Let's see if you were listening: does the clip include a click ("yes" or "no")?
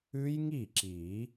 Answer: yes